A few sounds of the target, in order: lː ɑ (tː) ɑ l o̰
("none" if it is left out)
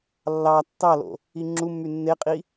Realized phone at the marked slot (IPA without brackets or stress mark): tː